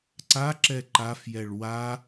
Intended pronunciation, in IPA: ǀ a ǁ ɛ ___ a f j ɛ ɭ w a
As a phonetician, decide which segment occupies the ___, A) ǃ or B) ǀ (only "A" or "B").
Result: A